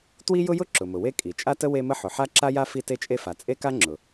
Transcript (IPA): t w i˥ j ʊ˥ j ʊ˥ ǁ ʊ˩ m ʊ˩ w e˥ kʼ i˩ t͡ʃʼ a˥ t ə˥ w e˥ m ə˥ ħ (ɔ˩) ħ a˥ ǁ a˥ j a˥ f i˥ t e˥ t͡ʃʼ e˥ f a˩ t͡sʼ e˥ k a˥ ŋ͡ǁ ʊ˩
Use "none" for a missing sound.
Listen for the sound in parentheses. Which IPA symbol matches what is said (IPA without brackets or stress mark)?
ʊ˩